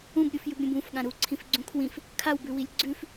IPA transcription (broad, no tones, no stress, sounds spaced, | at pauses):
ũ b ɾʲ u f j ʉ b ɾʲ ũ b ũ f ɠ ã ɾ u ǀʰ ĩ f ɡ͡ǀ ũ kʰ w ĩ f | kʰ a w b ʉ w i lʲ ɡ͡ǀ ʉ f